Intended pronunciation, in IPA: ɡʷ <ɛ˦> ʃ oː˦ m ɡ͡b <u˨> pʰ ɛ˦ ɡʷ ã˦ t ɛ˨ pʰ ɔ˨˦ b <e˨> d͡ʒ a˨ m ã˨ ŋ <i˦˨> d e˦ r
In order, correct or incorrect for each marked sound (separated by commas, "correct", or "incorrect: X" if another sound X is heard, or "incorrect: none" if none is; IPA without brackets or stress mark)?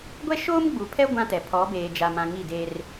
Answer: correct, correct, incorrect: eː˨, correct